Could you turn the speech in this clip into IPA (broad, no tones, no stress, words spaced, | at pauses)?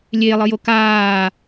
lʲelˠɯjo kaː